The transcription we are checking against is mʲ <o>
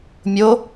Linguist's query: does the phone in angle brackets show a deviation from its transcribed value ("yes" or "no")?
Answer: no